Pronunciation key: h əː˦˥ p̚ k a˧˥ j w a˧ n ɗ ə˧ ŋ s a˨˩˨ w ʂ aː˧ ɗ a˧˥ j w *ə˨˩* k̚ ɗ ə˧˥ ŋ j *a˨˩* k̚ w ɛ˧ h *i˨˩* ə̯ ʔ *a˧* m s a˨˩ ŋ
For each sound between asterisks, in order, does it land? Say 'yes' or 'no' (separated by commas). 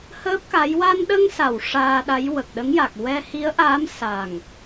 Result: yes, yes, no, no